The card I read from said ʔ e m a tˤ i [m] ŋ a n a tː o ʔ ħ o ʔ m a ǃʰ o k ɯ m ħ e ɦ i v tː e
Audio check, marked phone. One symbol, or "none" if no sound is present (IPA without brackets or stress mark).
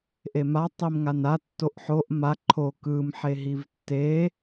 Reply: m